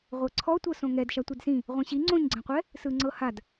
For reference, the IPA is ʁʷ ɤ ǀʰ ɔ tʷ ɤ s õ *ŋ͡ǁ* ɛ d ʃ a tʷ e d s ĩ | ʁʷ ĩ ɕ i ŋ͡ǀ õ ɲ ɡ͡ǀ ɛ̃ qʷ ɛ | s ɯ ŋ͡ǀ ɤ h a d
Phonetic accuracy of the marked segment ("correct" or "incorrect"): incorrect